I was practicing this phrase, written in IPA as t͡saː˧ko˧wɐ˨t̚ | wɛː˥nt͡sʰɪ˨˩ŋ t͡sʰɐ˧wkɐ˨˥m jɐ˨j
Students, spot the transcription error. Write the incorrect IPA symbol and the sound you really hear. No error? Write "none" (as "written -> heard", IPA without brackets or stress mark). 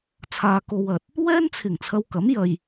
t͡s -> t͡sʰ